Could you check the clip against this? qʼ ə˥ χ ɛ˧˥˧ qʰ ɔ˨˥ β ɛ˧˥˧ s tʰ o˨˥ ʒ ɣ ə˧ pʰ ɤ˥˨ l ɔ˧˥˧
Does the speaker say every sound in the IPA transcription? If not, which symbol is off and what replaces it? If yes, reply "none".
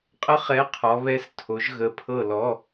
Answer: none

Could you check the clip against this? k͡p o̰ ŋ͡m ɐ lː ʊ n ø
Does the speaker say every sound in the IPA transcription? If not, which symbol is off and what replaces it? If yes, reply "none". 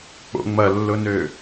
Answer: none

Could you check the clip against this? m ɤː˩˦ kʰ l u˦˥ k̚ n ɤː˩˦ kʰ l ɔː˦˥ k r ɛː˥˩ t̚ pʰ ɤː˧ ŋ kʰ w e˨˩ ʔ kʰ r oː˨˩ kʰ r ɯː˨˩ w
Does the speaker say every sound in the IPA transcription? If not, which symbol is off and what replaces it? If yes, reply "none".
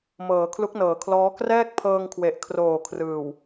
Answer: t̚ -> k̚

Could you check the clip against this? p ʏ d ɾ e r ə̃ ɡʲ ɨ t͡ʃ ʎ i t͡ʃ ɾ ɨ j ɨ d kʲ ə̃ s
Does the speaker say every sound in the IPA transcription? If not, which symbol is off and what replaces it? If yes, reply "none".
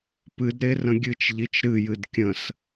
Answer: ʏ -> ɨ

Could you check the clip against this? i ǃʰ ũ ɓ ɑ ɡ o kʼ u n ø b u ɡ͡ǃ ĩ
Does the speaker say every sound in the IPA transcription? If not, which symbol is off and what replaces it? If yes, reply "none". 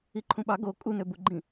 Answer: none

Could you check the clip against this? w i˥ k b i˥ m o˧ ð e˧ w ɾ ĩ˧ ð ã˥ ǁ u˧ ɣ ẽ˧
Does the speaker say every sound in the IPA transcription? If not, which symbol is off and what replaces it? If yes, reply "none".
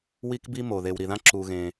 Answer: ĩ˧ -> i˧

